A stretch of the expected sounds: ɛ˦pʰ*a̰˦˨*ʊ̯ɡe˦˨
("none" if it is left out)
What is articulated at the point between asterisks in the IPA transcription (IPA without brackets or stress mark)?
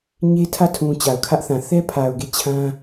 a˨